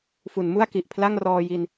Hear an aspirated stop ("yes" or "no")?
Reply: yes